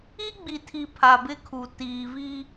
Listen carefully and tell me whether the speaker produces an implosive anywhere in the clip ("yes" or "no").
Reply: no